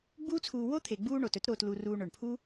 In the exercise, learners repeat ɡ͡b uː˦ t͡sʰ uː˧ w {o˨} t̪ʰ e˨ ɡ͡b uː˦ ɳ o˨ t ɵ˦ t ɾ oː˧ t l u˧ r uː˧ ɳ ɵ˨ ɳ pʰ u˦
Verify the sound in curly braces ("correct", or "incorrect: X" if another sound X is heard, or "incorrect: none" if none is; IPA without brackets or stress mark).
incorrect: o˦